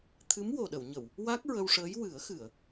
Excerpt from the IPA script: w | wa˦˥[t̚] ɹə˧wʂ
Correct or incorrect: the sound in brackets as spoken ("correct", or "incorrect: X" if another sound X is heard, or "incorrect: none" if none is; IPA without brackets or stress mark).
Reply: incorrect: k̚